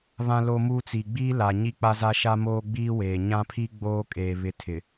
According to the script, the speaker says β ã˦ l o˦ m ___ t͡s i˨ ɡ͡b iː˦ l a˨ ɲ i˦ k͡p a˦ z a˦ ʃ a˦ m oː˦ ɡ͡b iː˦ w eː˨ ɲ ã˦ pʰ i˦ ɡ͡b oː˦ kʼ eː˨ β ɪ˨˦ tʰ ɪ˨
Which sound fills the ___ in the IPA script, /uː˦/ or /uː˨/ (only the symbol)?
uː˦